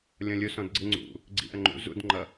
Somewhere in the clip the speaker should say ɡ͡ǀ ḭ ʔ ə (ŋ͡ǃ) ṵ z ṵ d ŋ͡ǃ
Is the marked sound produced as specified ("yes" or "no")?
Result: yes